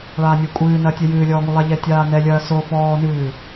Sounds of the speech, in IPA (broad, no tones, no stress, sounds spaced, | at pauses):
ɭ aː nʲ ɨː kʷʼ ɨː n ɐː tʲ ɛ j ɨː lʲ ɔː ŋ u lˠ a ʎ ɛ tʲ aː n ɛ lʲ ɐː s o f ɔː n ɨː